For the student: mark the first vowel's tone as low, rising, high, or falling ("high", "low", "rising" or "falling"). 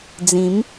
rising